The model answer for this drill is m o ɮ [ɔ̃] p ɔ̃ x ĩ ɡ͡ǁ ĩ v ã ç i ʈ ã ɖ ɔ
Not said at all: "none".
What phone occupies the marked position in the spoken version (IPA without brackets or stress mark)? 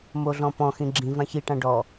ɔ̃